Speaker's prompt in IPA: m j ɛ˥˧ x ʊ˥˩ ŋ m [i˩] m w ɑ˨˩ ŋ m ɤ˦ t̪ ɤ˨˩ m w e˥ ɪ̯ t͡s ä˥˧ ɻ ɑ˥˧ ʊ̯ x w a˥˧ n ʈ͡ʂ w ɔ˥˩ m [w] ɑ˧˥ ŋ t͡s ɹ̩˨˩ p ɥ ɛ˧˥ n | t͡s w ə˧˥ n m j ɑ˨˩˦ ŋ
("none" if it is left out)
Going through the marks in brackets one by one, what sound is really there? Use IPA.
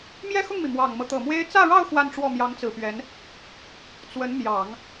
i˩, j

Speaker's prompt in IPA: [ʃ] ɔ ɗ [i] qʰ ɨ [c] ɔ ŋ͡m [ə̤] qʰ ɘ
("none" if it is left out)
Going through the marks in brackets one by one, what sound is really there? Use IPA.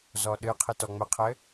z, ɨ, t, ə

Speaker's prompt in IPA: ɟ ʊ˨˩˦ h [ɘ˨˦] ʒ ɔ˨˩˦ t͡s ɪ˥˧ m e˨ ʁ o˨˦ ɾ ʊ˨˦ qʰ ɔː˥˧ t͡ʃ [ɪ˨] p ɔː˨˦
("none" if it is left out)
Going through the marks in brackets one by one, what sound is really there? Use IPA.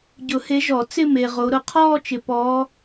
e˨˦, ɪ˨

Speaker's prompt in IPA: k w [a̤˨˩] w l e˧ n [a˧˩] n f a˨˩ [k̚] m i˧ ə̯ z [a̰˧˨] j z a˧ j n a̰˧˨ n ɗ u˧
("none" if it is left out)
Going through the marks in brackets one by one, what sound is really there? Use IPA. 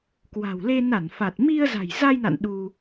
a̤˨˩, a˧˩, t̚, a̤˨˩

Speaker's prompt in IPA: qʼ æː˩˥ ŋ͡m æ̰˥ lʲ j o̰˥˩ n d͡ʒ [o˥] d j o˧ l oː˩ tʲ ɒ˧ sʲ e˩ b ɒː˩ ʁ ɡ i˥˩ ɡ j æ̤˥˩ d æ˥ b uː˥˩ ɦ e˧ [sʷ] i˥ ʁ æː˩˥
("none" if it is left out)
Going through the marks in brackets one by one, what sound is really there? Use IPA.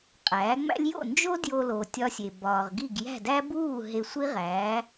o˥, sʷ

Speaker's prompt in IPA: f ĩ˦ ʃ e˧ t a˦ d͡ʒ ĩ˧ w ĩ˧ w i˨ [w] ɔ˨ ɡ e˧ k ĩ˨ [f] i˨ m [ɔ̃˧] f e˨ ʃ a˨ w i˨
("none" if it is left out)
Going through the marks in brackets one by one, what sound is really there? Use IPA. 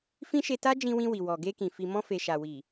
w, f, ɔ̃˧

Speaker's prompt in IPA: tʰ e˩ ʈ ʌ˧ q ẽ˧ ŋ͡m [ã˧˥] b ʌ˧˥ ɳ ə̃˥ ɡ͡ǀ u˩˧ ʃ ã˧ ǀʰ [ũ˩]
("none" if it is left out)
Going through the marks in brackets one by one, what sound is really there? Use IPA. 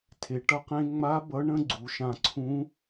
a˧˥, ũ˧˥

